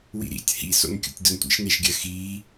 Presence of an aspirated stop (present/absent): absent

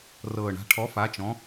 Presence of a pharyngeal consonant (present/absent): absent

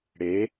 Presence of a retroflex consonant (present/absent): present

